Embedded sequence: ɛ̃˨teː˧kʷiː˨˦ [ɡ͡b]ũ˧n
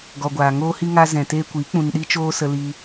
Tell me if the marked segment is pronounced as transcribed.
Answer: no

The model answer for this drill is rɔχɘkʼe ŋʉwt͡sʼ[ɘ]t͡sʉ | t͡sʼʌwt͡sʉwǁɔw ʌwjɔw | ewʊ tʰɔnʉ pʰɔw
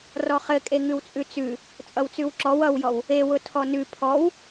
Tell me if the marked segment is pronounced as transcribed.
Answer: no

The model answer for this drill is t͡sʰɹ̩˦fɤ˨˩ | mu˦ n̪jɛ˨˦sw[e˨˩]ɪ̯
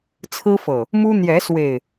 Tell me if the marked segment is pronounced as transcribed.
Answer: yes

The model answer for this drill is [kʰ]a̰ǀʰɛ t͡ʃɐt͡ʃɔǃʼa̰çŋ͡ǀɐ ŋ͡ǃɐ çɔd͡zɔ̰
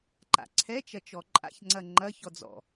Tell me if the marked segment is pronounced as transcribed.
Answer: no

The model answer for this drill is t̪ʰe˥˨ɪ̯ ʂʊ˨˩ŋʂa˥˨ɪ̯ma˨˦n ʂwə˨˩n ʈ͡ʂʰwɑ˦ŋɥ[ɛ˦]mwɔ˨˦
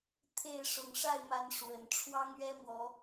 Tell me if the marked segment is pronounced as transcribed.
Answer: yes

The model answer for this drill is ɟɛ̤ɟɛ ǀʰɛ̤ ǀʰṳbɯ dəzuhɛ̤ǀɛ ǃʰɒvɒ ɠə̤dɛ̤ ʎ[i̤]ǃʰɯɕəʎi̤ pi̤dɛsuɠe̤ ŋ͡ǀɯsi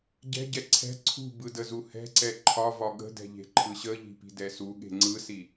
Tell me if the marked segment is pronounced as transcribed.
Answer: no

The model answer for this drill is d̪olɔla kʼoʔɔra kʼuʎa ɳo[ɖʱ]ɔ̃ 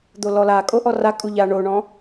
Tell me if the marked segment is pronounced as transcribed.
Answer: no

